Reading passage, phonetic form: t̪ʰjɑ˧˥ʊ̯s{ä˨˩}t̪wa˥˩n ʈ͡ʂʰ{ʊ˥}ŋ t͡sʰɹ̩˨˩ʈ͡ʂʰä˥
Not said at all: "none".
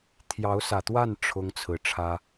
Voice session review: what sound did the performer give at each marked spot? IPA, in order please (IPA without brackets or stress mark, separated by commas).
ä˨˩, ʊ˥